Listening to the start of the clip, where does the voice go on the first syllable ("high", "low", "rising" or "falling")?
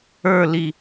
falling